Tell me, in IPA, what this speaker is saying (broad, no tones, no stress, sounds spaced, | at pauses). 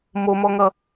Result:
m o m ɔ ŋ ʌ